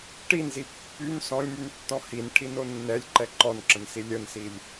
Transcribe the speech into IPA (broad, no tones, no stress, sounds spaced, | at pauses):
ʈ i n z i pː y n s ɔ̃ lʲ m y n tː ɔ̃ h i n ʈʰ i n o nː ɛ lʲ ǃ ɛ ǃ ɔ n ǁ ə̃ n s i lʲ ə n s i lʲ